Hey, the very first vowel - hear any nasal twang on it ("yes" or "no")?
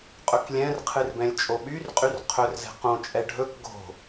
no